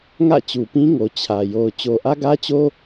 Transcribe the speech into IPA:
ŋä̰˦˨t͡ɕu˨pĩ˦ŋo˨ t͡ɕʰä˨jo˨ʊ̯ t͡ɕo˨ʔä˦ɡä˦t͡ɕo˦

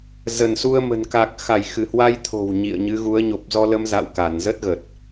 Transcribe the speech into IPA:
zə˧˩nsu˧ə̯mə̤˨˩n ka˨˩k̚xa˧˩j xɨ˧˩hwa˧jt̪ʰo̤˨˩w ɲḭ˧˨ə̯ɲɨ˨˦ɣu˨˦ə̯ ɲo˨˩p̚zɔ˧lə˧mza̰˧˨w ka˧˩nzə˦˥t̚ɣə˨˩t̚

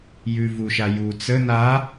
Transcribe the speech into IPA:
jʉvuʃaju t͡sə na

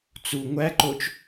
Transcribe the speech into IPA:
t͡su ŋʷæǃot͡ʃ

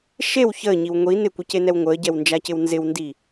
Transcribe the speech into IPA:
ʃew çəːɲiw ŋʷi nɪkʷɪcenɛw ŋʷəːɟɛwnd͡ʒacɪw nzɪwndi

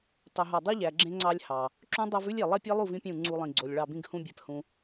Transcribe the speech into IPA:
tˤɵ˨ɦɑ˨ dˤʉ˦ʎæ˨ ɡ͡ǁẽ˦ŋ͡ǀɑ˦lʲ hɑ˨ | ǁũ˦dˤæ˦vʉ˦lʲ e˨ lˠe˦pʲe˦lˠu˦˨v ĩ˦pʲũ˦˨ ŋ͡ǀu˦lˠĩ˨ɡ͡ǀo˨lʲ ɭɑ˦˨bĩ˦ɡhũ˦bʲæ˨p hũ˨

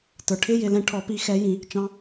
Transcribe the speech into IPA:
tə˞˩ʈʰɪ˧˥˧jɪ˧˩lɛ̃˧˩ ʈʰɔ˨˩˦pi˨˦xɛ˨˦jĩ˨˩˦ | t͡ʃɑ̃˨˦

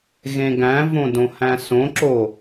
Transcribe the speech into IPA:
ɣẽɡæ̃võ dõhæ̃sõǁo

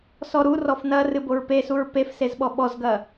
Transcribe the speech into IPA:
sɔɾu rɔfnɐ rɨboɹpesuɹ pefsezɓɔ ɓɔzɡɐ

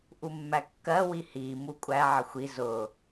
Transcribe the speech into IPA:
ʔumːækːɜ wihi mukʷʼæ ʕəxʷi zʊ

